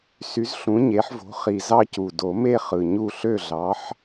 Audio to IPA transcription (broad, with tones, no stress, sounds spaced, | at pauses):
s y˨˥ z ɬ ũ˨˥ ɲ e˨˥ ħ v o̤˨˥ χ i˨˩ z ɑ˥˨ c u˨˩ d o˨˩˦ m e˥˨ χ ɯ˨˩ ɲ u˥˨ ɬ ø˥˨ ɮ ɑ˨˥ ħ